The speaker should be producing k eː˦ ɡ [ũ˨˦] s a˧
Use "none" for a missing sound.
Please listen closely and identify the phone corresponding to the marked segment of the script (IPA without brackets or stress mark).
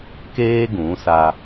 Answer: ũ˨˦